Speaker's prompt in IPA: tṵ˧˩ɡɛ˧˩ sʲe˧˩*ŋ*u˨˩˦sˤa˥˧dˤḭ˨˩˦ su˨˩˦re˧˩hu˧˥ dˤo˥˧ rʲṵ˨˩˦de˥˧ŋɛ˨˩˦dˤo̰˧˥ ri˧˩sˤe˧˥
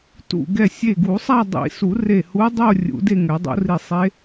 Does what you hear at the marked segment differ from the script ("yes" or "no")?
yes